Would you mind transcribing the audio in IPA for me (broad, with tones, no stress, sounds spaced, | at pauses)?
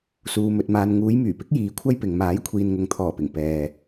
s uː˨ m ɵ˨ t̚ m aː˨ n ŋ uː˨˧ j m yː˨˩ p ɪ˨˥ k̚ j iː˧ kʷʰ ɐ˥ j p ɪ˨ ŋ m aː˨˥ j kʷʰ iː˨ n ŋ ʊ˨ ŋ t̪ʰ ɔː˨˩ p ɪ˨˩ ŋ p ɛː˨